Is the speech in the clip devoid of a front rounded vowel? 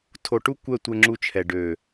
no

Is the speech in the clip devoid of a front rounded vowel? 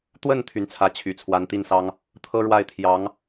no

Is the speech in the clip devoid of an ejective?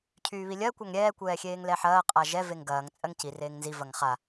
no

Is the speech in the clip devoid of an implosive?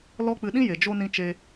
no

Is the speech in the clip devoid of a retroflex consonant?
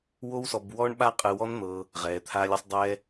no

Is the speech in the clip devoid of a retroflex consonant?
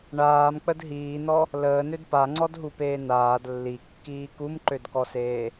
no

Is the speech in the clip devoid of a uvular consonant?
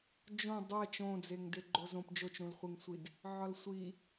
no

